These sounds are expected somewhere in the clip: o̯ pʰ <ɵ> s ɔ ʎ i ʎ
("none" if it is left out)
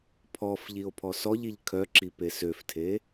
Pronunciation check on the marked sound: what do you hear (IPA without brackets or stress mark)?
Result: ɔ